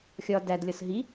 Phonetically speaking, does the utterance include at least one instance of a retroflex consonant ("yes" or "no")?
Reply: no